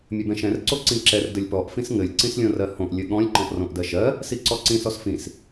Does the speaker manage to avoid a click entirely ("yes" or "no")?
no